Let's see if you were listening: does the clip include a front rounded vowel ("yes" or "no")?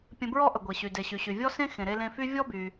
yes